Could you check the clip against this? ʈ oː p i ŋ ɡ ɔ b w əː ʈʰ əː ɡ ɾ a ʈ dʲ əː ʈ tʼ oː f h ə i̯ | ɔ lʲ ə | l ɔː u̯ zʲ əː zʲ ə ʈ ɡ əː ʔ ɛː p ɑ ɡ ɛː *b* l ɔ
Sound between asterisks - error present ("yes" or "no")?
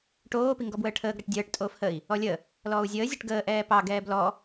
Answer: no